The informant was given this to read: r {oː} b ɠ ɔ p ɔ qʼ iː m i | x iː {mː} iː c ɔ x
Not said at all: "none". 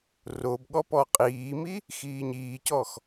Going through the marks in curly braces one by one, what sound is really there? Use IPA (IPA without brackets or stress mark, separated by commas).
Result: o, ɲ